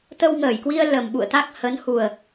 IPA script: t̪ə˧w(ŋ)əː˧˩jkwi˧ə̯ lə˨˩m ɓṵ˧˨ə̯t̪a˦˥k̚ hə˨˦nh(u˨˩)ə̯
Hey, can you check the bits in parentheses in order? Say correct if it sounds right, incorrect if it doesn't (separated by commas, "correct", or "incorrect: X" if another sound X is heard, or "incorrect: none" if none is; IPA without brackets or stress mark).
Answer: correct, correct